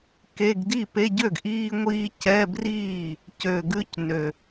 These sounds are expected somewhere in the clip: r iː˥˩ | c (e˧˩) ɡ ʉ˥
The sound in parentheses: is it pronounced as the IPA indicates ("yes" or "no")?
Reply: no